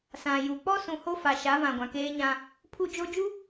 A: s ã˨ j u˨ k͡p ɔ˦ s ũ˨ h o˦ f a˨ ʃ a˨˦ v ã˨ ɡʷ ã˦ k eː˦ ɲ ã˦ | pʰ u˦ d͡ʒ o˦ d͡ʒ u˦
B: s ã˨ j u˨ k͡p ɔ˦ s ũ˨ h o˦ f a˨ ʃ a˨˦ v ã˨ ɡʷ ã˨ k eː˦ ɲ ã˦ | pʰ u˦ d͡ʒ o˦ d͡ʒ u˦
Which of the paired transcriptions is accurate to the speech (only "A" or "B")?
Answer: B